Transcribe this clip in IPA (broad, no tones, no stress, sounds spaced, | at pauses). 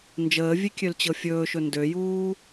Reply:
n d͡ʒ əː vʲ e kʲ ø l t͡ɕ ɤ fʲ ɵː ʃ ɵ n d ø j uː